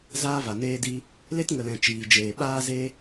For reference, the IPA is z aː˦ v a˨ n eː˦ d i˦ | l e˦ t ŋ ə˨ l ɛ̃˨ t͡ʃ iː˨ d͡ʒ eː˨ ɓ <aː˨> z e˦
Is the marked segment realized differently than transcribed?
yes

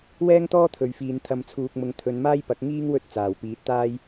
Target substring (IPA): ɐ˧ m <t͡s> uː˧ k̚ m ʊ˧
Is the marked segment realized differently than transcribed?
yes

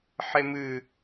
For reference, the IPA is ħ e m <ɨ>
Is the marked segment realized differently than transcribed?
no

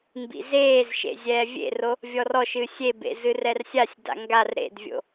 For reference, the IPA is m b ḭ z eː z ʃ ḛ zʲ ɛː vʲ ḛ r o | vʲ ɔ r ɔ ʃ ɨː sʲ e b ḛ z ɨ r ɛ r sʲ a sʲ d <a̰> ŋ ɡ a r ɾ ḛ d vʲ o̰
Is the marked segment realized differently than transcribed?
no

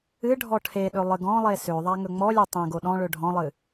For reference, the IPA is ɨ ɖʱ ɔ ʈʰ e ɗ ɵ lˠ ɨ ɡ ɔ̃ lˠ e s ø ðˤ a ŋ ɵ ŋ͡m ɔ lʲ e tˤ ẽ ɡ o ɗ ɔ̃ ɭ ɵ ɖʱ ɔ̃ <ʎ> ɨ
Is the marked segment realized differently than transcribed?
yes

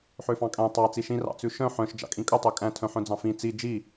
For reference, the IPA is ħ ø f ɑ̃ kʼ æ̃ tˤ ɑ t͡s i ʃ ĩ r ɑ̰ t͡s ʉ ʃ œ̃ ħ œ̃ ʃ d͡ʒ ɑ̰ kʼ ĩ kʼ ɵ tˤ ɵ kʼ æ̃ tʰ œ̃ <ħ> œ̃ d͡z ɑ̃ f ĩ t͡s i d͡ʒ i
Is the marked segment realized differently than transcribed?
no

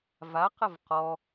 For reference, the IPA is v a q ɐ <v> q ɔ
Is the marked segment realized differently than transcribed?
no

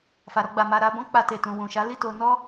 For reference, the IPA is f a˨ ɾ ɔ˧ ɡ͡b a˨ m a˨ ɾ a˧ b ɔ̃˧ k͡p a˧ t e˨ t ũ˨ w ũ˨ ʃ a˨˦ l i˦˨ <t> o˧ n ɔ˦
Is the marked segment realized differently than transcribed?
no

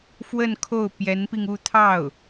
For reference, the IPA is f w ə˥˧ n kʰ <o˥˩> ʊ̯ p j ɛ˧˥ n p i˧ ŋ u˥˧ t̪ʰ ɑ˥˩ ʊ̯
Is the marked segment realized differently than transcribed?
no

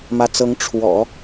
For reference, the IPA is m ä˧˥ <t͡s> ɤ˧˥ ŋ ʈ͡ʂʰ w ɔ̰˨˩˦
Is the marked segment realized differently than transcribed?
no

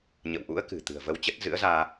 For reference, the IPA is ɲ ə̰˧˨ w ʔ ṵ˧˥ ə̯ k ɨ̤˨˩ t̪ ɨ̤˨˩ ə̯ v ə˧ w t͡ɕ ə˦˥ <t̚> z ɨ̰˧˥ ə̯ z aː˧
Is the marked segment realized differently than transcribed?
no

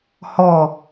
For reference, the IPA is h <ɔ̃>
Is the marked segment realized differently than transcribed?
yes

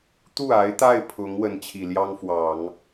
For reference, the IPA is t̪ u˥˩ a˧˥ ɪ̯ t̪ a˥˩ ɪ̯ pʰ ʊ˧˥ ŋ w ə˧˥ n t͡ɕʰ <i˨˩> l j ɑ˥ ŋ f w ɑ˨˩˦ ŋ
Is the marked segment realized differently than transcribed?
no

